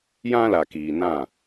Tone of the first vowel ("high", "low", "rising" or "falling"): high